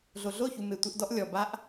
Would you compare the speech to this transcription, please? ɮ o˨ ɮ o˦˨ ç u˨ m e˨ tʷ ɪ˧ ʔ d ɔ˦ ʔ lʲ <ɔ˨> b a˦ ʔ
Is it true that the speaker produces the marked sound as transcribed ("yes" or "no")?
yes